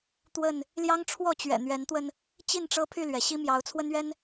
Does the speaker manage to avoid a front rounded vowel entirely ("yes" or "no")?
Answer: no